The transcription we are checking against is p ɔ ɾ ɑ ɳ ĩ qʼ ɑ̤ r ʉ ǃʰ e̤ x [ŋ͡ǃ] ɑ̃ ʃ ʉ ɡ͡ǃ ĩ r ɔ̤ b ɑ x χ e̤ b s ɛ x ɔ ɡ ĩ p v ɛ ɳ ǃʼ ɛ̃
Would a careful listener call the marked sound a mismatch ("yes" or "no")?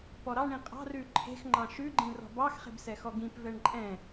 no